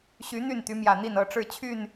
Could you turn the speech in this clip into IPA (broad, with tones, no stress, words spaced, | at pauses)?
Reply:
ɕy˨˦ n̪y˥˨nt̪y˨˦mjä˨˩n̪i˥˨n ɤ˥˨ʈ͡ʂɻ̩˥˨ t͡ɕʰy˥˨n